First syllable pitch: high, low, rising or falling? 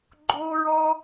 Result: high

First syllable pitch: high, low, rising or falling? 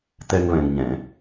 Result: high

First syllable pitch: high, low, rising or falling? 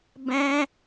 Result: high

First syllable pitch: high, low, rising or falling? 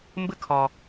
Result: high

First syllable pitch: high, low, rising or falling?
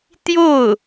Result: falling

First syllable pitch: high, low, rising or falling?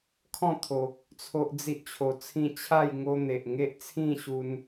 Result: falling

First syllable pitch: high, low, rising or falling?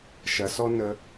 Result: low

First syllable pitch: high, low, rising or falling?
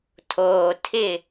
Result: low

